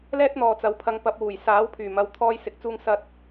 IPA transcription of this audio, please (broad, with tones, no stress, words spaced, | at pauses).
lɛː˥t̚n̪ɔː˨ t͡sɐ˨˥w pʰɐ˨˧ŋpɐ˨p̚ wuː˨˩jsaː˨˥wpʰyː˨˩mɐ˨w t̪ʰɔː˥jsɪ˧k̚t͡suː˥ŋsɐ˥t̚